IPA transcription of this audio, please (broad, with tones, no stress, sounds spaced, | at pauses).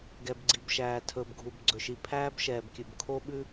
ɡ ɛ˨ b ɡ͡ǀ i˨ b ʃ æː˨ tʰ ɵː˨ b ɡʱ u˨ b ɡ͡ǀ ɵ˨ ʃ i˨ pʰ æː˦ b ʃ ɛː˨ b kʲ ʉ˨ b kʰ o˦ ɓ ʉ˦